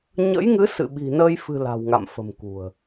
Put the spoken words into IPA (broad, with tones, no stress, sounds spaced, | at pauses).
ɲ ə̰˧˥ j ŋ ɨ˨˦ s ɨ̰˧˨ ɓ i̤˨˩ n əː˧ j f ɨ̤˨˩ l a̤˨˩ w ŋ a̰˧˨ m f ə̤˨˩ m k ṳ˨˩ ə̯